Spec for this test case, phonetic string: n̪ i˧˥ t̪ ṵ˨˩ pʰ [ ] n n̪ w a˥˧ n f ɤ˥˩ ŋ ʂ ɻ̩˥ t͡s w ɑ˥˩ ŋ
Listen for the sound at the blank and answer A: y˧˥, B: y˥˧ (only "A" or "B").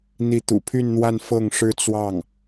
B